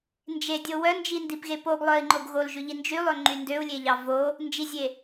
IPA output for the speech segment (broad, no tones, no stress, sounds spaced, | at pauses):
n d͡ʒ e dʲ o w œ n d͡ʒ i n d i p ɣ e p o ɡ lˠ œ i̯ ŋ͡ǃ o ɡ ɣ o l ʒ ʉ ʎ i n d͡ʒ y lˠ ø ŋ͡ǃ y n d ø u̯ lʲ e ʎ ɑ v o | n d͡ʒ i zʲ e